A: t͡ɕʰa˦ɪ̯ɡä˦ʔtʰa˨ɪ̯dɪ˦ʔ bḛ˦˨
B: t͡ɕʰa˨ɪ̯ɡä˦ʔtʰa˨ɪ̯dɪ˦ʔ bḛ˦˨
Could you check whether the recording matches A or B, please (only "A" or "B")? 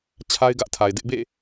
A